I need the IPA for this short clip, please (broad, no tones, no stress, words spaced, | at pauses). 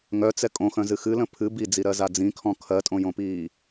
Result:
ŋœt͡sɛ kʼõxœ̃zɨ xɨlə̃ pʰɨ bid͡ziɾɜza d͡zĩkʰɔ̃ kʰɜtʼõjõpiː